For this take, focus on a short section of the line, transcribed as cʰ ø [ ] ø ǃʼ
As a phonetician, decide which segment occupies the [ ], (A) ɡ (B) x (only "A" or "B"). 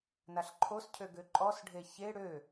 A